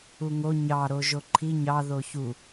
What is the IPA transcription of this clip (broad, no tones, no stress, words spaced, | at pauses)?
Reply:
uŋo ɲɑɾo ʒoǃʰi ɲɑ ðoçu